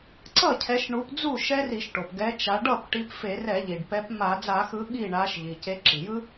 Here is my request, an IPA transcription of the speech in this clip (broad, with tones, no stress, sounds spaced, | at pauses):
ǀ ʌ˥˩ cʰ ɛ˨˦ ʃ ɳ u˨˦ p d͡z u˥˩ ʃ ɛ˦˥ r i˧˩˧ ʃ ʈ o˩ p ɡ ɛ˨˦ t͡ʃ a˨˦ ɖ ʌ˥˩ p ʈ i˨˦ p f e˧˩˧ r ɛ˧˩˧ ʎ i˩ ɖ p ɛ˨˦ p m a˧˩˧ d͡z a˧˩˧ x ɯ˨˦ ɠ i˥˩ ɳ a˨˦ ʃ ʎ i˩ c e˨˦ ǁ i˩ j ɯ˦˥